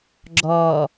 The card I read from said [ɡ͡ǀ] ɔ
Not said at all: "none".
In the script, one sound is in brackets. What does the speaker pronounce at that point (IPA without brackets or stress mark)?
ɡ͡ǁ